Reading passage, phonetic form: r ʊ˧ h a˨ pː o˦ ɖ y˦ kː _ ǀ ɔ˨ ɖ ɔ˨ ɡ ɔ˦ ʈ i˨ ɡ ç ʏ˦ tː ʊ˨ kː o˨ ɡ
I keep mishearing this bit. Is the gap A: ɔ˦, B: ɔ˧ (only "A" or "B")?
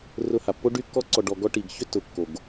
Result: B